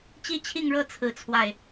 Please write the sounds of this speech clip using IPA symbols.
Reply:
t͡ɕ i˥ t͡ɕʰ i˥˧ ŋ ɻ ɤ˥˧ t͡sʰ ɹ̩˥˧ t͡sʰ w a˥˩ ɪ̯

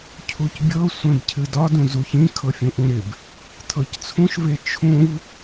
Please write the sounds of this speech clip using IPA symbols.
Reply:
cʰ u c bʲ ɤ sʷ ẽ b cʰ ɨ d ɒ d ũ z u ç ĩ kʰ ɤ fʲ ũ ʔ ũ ɾ ɪ b | tʰ ɤ c t͡sʰ ũ ʃ v e t͡ʃʰ ũ v

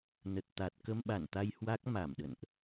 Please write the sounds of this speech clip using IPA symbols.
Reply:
n ə˨˩ t̚ t̪ a˨˩ t̚ k ə˧ m ɓ a˧˩ n t̪ a˧ j h w a˦˥ k̚ m a˧˩ m ɗ ə̰˧˨ n ʔ

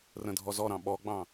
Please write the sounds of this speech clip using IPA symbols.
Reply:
r ə̃ dʱ ɔ z ɔ ɾ ɑ̃ ɓ ɔ ɡ͡b ɑ̃

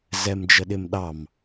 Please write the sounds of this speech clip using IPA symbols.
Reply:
z ɛ m d͡ʒ ə ɗ ɪ m ɗ ɑ m

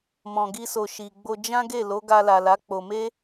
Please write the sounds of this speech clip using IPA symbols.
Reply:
m ɔ̃˨ ɡ i˧ s o˨ ʃ i˨ ɡ͡b o˧ d͡ʒ ã˦ ɡ e˦˨ l o˨˦ ɡ a˧ l a˨ l a˨˦ k͡p o˧ m e˦

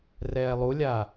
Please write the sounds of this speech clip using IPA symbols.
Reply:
r ɛː lˠ u lʲ aː

